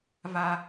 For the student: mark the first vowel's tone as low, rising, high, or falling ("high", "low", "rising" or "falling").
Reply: high